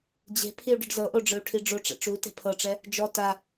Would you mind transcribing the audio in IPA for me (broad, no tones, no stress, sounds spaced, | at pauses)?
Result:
d͡ʑ e̤ pʰ i u̯ ɖ ɯ ɖ z ɤ ʔ o ɖ͡ʐ ɯ u̯ ʈʰ i ɖ͡ʐ o ʈ͡ʂ ɛ̰ ʈ͡ʂ u t e̤ pʰ ɤ ʈ͡ʂ ɛ | d͡ʒ ɔ t a